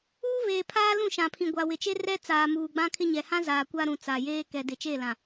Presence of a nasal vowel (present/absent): present